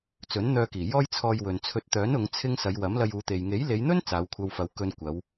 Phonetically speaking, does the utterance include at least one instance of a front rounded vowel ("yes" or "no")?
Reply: yes